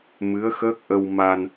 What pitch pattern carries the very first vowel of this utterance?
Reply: rising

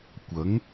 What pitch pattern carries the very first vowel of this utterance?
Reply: rising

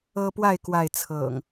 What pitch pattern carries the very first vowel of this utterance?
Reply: high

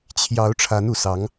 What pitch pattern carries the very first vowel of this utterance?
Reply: rising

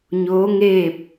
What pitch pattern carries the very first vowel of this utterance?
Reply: rising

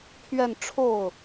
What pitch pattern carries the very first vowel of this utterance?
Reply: falling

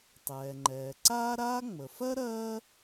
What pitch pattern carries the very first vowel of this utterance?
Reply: low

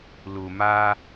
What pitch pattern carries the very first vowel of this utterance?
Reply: low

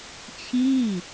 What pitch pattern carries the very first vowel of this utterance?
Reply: falling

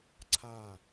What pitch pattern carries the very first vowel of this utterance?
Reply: falling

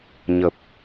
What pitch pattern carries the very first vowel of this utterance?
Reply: low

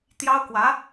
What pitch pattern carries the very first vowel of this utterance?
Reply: high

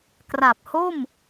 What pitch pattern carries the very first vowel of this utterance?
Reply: low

